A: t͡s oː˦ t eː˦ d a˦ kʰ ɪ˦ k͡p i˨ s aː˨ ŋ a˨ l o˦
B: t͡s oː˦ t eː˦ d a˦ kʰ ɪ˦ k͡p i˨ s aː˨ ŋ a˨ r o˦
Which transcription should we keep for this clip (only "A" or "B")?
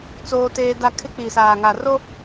B